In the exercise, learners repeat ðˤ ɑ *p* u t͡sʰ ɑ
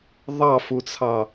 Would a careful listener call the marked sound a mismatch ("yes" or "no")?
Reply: yes